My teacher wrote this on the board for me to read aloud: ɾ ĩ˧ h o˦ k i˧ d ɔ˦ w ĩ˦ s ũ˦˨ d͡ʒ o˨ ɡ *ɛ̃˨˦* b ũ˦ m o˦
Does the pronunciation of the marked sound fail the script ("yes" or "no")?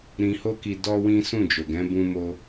no